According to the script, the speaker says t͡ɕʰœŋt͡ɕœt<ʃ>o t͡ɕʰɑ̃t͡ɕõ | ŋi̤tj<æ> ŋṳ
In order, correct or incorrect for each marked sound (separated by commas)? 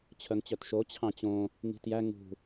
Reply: correct, correct